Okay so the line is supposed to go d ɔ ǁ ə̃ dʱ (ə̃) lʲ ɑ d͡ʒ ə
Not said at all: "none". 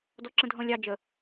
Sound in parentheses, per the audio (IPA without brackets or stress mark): ɔ̃